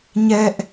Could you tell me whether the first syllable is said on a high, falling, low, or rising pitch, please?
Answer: high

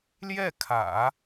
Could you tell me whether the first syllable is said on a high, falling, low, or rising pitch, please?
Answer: falling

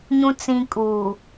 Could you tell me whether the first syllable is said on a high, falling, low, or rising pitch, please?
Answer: low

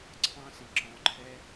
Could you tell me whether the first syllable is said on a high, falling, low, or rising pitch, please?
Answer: high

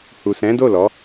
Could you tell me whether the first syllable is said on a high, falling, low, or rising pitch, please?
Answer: low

